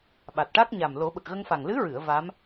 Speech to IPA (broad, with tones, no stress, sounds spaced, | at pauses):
ɓ a˨˩ t̚ ʈ a˦˥ k̚ ɲ a˨˩ m l o˨˩˦ ɓ ə˨˩ k̚ ɣ ə˧ ŋ f a˨˩ ŋ l ɨ˧˥ ɹ ɨ˨˩˨ ə̯ v a˧˥ m